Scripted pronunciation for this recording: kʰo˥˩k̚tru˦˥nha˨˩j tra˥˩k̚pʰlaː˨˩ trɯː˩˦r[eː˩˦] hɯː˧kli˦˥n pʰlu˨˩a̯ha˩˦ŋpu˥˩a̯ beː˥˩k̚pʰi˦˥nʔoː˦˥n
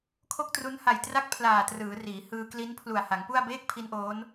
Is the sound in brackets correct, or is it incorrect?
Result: incorrect